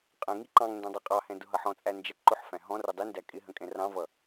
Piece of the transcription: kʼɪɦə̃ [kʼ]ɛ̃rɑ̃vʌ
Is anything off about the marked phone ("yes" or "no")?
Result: no